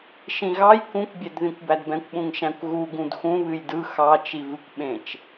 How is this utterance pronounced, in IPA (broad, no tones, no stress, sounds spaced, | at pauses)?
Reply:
ʃ ĩ ɣ ɑ j k ũ kʷ bʲ ɛ d ð ĩ kʷ b æ d b ɛ̃ kʷ ɓ ũ ŋ ʃ æ̃ kʷ ɣ u ɡ ũ d x ũ β ɨ j d ɯ x ɑ t͡ʃ i v ɨ kʷ ɓ ẽ t͡ʃ